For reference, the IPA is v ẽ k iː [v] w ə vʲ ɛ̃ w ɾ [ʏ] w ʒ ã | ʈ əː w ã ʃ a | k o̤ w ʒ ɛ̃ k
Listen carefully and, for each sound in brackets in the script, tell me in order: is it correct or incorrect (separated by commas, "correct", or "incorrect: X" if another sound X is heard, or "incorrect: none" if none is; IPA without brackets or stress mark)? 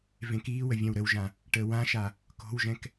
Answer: incorrect: none, incorrect: ə